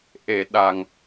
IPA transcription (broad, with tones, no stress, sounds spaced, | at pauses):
ʔ e˨˩˨ ɗ a˨˩ ŋ